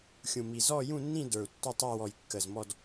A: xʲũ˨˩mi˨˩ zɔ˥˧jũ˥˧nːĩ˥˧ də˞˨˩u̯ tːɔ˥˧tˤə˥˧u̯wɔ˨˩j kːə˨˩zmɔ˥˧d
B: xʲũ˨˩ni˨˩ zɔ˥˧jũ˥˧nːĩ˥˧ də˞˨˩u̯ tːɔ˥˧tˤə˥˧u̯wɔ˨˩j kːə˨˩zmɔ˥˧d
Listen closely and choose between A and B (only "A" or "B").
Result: A